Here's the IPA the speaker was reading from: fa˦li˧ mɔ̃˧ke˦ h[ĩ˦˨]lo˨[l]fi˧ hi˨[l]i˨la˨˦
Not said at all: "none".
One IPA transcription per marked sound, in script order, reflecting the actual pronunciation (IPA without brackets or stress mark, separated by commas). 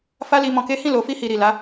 ĩ˦˨, none, ɾ